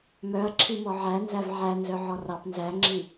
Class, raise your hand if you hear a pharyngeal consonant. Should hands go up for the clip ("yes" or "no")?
yes